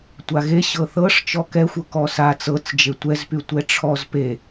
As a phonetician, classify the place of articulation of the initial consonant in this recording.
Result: alveolar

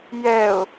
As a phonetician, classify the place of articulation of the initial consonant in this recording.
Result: palatal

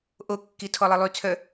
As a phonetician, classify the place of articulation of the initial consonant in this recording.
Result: glottal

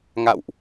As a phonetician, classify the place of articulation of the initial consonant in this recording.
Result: velar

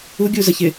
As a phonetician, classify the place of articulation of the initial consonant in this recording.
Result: velar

